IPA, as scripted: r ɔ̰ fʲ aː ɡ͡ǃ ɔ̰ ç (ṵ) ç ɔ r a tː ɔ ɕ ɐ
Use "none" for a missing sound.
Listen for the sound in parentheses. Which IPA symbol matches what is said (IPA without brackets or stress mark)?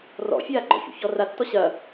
ṵ